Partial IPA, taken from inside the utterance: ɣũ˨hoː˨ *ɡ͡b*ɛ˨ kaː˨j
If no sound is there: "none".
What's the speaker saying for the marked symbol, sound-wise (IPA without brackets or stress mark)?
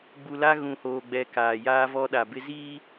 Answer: ɡ͡b